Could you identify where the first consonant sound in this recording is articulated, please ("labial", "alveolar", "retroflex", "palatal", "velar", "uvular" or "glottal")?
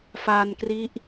labial